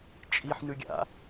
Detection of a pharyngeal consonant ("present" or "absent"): present